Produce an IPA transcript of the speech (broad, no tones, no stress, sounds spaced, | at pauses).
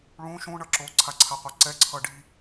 ɭ ũ ʃ ũ ɳ ʌ ǁ o ǀʰ a ǀʰ a qʷ a ǀ ɛ ǀʰ ʌ ɖ i